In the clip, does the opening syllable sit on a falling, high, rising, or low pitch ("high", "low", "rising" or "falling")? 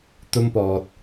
high